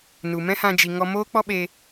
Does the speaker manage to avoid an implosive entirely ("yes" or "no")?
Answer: no